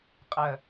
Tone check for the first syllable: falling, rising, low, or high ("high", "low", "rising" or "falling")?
low